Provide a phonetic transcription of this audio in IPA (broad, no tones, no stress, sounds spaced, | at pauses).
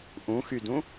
ʔ ũ x y d ũ